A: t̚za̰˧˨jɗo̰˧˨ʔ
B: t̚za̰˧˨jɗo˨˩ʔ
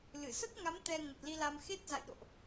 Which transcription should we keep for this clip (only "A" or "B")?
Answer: A